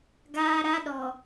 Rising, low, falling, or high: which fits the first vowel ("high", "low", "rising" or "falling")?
high